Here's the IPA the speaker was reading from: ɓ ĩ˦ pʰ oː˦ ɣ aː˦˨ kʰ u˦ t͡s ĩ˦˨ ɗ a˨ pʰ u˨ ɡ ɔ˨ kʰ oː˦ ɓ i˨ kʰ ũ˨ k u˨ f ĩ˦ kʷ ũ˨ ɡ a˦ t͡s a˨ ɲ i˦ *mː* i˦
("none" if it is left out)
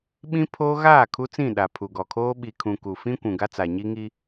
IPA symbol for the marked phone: ŋ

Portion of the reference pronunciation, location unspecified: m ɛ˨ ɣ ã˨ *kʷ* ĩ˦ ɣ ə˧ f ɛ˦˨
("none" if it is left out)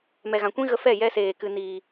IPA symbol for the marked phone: kʷ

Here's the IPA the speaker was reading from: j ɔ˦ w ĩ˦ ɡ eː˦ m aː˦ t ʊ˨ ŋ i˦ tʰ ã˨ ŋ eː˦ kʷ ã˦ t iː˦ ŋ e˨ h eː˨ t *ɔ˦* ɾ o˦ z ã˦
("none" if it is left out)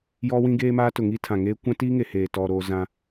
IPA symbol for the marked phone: ɔ˦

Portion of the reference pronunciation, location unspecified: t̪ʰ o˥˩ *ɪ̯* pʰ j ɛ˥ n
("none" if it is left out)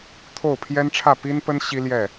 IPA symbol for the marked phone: ʊ̯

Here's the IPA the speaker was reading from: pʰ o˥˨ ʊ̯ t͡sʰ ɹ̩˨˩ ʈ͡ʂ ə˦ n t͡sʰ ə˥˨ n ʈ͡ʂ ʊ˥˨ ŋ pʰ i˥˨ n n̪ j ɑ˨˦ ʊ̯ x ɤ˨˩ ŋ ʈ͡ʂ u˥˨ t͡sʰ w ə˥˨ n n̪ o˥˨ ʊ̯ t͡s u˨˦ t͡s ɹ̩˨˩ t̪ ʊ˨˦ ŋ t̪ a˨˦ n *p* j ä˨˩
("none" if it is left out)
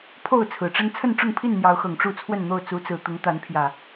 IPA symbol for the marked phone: pʰ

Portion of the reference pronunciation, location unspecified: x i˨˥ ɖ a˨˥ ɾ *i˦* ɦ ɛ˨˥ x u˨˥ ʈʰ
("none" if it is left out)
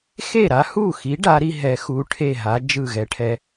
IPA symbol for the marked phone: i˦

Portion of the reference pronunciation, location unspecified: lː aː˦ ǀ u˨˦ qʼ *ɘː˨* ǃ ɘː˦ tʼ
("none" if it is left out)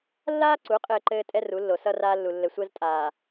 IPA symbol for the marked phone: ɘː˦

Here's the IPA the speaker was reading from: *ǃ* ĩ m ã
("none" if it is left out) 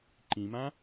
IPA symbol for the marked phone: ǃ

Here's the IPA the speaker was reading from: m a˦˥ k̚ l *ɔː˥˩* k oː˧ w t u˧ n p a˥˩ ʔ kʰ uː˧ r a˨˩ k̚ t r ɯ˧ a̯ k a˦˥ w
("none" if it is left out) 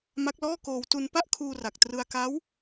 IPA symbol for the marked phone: ɔː˥˩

